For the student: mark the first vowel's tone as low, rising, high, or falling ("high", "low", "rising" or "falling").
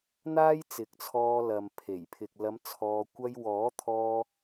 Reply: high